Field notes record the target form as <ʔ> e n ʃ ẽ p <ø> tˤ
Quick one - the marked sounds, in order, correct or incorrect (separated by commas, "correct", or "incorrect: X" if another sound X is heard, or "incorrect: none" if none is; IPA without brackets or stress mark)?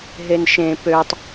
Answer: incorrect: ɦ, correct